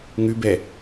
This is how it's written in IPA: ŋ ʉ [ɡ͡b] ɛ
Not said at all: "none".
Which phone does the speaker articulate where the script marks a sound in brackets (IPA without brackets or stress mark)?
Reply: b